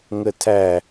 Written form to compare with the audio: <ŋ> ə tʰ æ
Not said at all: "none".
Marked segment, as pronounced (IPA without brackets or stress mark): ŋ